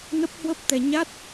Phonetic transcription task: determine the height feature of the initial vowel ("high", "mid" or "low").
mid